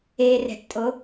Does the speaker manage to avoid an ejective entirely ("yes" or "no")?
no